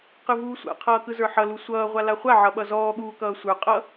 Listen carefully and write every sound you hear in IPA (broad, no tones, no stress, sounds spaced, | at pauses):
q ɯ v uː sʷ a̰ qʰ ʌː k ɯ z ə˞ ħ ʌ l u sʷ ʌː ʁʷ a l a χʷ a ʕ ʌ ɓ ʌ z ɔː ɠ uː k ʌː sʷ ə˞ qʼ ʌ